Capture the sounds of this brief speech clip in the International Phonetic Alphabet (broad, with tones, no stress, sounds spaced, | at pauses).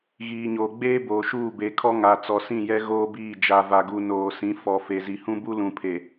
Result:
ɣ iː˨ ɲ oː˨ ɡ͡b eː˦ b oː˨ ʃ uː˦˨ b e˨˦ kʰ ɔ˦ ŋ a˨ t͡s ɔ˨ s ĩ˦˨ j ɛ˦ ɣ oː˦ b iː˦˨ d͡ʒ a˨ v a˨ ɡ u˨ n oː˨ s ĩ˨˦ f ɔ˨ f e˨ z i˨ h ũ˦ b u˦ l ũ˨ pʰ e˨